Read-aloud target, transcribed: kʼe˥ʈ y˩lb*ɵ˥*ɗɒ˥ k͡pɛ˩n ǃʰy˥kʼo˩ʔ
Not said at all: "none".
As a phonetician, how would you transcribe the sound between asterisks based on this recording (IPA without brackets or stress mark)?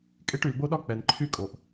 o˥